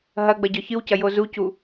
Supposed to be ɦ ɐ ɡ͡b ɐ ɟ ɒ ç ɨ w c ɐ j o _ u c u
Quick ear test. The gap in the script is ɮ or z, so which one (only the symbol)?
z